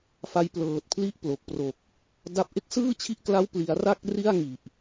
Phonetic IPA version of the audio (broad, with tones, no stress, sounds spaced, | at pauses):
f a˦˥ j p l ɤː˨˩ t̚ pʰ l i˦˥ ʔ p l o˨˩ k̚ p r o˨˩ k̚ | d a˥˩ p̚ ʔ e˦˥ k̚ s ɯː˥˩ t͡ɕʰ i˦˥ ʔ k l a˦˥ w p l i˩˦ a̯ r a˥˩ k̚ r i˥˩ a̯ ŋ i˨˩ ʔ